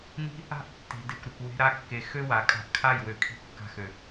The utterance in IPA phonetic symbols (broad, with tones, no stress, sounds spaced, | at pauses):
n i̤˦ | a̤˦ ʔ tː e̤˨ d e˨ kʷ ɾ ɪ˨ kʷ w e̤˧ ɾ a˧ kː e˨ x ø˦ w a˨ kʼ a̤˧ ʔ kʰ a˦˨ j w ø˨ kʰ i̤˧ kː a̤˧ x ø˨